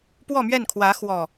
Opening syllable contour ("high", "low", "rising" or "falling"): falling